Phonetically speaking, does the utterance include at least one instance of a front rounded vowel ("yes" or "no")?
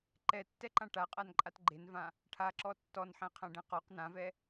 no